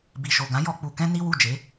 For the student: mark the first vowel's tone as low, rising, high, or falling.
low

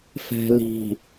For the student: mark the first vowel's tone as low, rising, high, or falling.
low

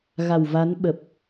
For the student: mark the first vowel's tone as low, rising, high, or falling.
low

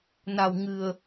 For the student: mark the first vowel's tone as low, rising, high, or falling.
low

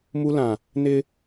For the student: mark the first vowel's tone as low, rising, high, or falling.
high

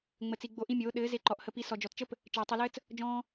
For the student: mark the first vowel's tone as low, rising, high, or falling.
low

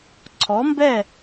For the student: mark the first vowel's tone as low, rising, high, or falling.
rising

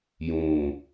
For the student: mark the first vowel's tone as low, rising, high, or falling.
low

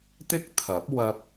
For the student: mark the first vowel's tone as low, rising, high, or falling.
high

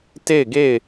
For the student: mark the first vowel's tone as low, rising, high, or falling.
falling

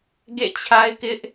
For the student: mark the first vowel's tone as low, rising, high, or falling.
falling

